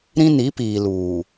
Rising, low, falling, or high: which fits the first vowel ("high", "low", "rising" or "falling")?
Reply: high